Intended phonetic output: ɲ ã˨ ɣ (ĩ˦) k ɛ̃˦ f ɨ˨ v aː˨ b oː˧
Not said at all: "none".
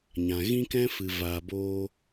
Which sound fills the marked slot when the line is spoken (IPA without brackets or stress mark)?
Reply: ĩ˦